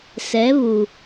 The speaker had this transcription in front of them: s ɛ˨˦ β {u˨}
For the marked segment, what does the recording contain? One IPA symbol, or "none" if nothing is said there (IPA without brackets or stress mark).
u˨